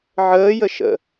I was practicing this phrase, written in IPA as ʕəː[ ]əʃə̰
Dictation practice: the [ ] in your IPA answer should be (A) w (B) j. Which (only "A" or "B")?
B